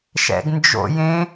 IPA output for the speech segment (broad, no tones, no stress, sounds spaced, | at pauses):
ʃ ɛ̰ ɡ n d͡ʒ o̰ j ẽ